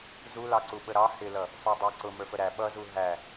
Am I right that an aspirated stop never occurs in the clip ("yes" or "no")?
yes